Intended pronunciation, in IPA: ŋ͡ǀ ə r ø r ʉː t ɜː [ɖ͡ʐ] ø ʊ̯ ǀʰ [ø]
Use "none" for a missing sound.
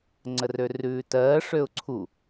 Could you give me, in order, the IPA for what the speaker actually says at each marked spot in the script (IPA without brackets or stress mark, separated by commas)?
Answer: ʂ, u